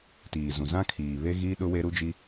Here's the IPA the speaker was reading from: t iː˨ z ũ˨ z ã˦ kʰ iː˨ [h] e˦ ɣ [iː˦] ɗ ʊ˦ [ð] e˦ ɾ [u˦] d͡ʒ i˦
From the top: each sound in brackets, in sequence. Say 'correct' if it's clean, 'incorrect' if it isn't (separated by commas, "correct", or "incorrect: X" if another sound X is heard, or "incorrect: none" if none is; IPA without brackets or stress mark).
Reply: incorrect: β, correct, incorrect: w, correct